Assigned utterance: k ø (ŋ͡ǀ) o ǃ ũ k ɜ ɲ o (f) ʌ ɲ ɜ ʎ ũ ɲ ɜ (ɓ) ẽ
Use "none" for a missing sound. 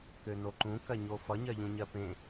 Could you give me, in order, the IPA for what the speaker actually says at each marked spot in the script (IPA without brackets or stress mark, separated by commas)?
n, f, p